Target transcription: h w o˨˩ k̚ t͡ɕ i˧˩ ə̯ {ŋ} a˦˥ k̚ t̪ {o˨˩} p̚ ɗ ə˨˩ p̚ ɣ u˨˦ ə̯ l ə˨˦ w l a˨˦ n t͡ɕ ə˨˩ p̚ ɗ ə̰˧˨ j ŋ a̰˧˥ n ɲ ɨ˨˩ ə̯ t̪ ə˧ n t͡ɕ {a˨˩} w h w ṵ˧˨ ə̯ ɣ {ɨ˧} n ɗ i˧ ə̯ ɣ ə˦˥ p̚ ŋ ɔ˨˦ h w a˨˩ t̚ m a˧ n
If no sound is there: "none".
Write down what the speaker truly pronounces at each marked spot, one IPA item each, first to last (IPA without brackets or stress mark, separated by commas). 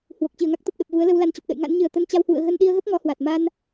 ŋ, o˨˩, a˧, ə˧